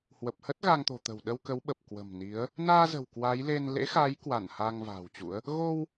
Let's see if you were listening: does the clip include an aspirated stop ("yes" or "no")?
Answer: no